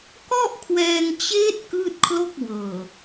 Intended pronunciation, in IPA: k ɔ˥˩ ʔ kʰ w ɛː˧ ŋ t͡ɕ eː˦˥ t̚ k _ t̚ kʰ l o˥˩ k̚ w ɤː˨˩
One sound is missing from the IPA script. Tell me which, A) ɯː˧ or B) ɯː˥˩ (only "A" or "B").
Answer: B